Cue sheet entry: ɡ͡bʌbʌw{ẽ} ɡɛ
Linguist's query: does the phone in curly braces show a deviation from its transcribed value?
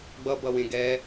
no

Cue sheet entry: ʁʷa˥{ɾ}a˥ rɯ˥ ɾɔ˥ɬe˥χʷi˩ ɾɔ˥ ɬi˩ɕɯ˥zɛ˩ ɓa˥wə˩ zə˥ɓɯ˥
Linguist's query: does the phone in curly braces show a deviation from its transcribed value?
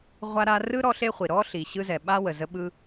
no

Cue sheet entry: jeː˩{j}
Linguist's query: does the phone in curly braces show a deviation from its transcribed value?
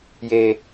yes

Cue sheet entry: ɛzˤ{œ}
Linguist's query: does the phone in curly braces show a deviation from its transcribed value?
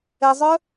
no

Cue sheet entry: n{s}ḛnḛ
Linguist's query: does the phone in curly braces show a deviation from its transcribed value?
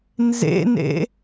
yes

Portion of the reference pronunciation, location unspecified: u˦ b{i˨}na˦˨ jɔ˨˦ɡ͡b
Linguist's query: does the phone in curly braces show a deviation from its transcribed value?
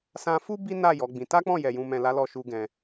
yes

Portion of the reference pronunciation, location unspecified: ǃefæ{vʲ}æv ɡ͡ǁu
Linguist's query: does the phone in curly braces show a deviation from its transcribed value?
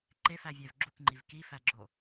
no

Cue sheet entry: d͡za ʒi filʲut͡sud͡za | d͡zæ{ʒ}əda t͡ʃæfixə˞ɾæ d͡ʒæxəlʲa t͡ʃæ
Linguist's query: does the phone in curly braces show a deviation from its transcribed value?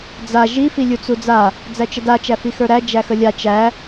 yes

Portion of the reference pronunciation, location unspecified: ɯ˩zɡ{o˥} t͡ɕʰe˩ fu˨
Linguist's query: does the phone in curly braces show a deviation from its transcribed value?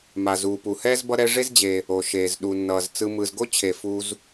no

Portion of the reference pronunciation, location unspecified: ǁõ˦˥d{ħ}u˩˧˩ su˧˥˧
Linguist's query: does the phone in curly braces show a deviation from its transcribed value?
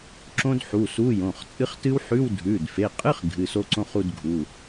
no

